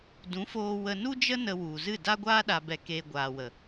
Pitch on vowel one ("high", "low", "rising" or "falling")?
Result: rising